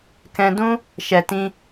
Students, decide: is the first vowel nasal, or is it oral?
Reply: nasal